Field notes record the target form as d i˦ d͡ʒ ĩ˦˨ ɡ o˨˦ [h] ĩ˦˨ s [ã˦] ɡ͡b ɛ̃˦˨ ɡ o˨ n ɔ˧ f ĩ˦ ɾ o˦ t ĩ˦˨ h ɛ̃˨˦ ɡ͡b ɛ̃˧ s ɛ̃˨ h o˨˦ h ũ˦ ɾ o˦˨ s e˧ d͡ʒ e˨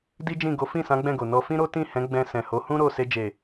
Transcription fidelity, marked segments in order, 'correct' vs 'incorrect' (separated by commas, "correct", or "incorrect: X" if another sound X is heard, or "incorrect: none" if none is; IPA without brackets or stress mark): incorrect: f, incorrect: ã˨˦